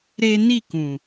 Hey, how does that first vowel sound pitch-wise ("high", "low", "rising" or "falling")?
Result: high